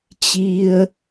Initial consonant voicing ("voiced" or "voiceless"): voiceless